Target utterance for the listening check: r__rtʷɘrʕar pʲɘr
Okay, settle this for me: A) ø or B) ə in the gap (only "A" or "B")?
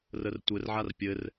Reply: B